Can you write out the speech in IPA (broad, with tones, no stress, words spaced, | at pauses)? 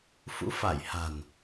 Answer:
fṵ˧˥fa˧˩jha̤˨˩n